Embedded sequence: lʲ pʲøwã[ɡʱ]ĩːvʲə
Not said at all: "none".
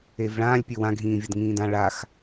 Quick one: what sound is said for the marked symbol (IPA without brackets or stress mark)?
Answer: ɡʱ